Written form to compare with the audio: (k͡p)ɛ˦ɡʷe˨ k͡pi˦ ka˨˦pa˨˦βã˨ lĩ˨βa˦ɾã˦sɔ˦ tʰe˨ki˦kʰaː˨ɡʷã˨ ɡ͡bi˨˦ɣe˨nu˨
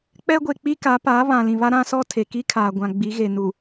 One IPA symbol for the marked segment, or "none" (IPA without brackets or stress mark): k͡p